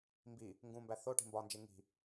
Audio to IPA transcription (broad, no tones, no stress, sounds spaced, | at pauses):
m b i | ŋ ɡ ũ m b æ θ o ʈ i̤ m b ɒ n d͡ʒ e ŋ i̤